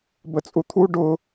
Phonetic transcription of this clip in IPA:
b ə t͡sʼ u t̪ʰ u ɖ ʊ

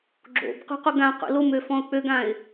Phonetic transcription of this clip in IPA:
ɡ͡ǁ o̰ b q ṳ q u ɡ ã q ṵ l o m ø f ɔ̃ ʊ̯ k͡p ø ɡ ã ɪ̯

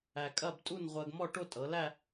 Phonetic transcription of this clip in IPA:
æ˧ kʼ ɐ˥˧ b tʼ u˥˧ n ʁʷ ɜ˧ ɡ m ɔ˥˧ ʈ o˥˧ tʼ ɤ˩˧ l æ˥˧

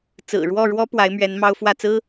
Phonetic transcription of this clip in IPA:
t͡s ɹ̩˨˩ ɻ w ɔ˥˩ ɻ w ɔ˥ p w a˧˥ ɪ̯ m ɥ ɛ˧˥ n m ɑ˥ ʊ̯ f w ä˥˩ t͡s ɹ̩˥

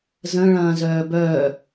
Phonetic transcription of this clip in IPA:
z ə̃ ɭ ɐ̃ː z œː b œː

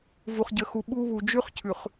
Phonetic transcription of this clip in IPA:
v u˨ χ ɟ ə˨ x u˨ ɓ u˦ β u˨ d͡ʒ ʉ˦ χ cʰ ʉ˨ χ

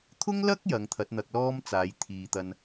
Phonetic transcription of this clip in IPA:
t̪ʰ ʊ˥ ŋ l ɐ˥ k̚ j ɐ˨˧ ŋ t̪ʰ ɐ˨˥ t̚ n̪ ɐ˧ k̚ l ɔː˥ m t͡s aː˨˧ j t̪ʰ iː˨ t̪ ɐ˧ n

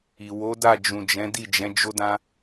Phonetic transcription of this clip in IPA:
i˨ w o˨˦ d a˦˨ d͡ʒ ũ˨ d͡ʒ ɛ̃˨˦ d i˦˨ d͡ʒ ɛ̃˨˦ d͡ʒ o˦ d ã˦

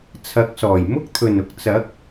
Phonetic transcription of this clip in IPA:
t͡sʰ ɐ˨˥ k̚ s ɔː˨˩ j m ʊ˥ k̚ t̪ʰ ɵ˨˩ n ʊ˨ k̚ t͡s ɐ˨˥ k̚

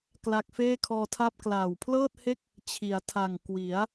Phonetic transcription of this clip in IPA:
k l a˦˥ k̚ f eː˥˩ kʰ ɔː˧ tʰ a˥˩ p̚ k l aː˨˩ w pʰ l ɤː˥˩ t̚ h e˥˩ k̚ | t͡ɕʰ i˩˦ a̯ tʰ a˨˩ ŋ k w i˩˦ a̯

